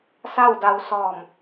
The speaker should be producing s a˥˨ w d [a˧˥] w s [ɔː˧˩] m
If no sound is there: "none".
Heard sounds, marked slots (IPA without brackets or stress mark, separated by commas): a˧, ɔː˧˩